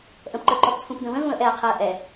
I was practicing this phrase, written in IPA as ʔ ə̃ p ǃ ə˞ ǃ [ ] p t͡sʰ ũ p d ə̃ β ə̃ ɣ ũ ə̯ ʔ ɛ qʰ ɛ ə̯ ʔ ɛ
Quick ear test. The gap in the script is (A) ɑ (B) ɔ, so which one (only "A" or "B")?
B